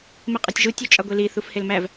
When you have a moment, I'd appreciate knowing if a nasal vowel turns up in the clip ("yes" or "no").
no